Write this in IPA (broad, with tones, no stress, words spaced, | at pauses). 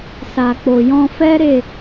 sa˨k͡po˨ jɔ̃˧fɛ˦ ɾe˦˨